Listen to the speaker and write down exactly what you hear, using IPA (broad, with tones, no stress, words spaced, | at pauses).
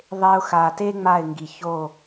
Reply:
ðˤe˧ʊ̯xa˨te˦ ŋ͡ma˦˨ɪ̯ŋɡi˨ço˦˨